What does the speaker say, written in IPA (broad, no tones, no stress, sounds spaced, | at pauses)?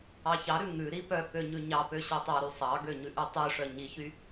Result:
ɑ ç ɑ ɾ ʉ ŋ ʉ ɾ i p œ k ø ɲ ʉ ɲ ɑ p ø ɕ œ tˤ ɑ ɾ y sˤ ɑ ɡ ø ɲ ʉ ʔ y tˤ y ʂ œ ɲ i ç y